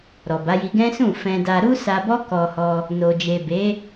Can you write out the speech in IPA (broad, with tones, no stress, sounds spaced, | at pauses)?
ɾ ɔ˨ b a˨˦ j i˧ ɡ ɛ̃˦ s ũ˦˨ f ɛ̃˧ d a˧ ɾ u˦ s a˧ b ɔ˦ k ɔ˧ h ɔ˧ | n o˨ d͡ʒ e˨ b e˨˦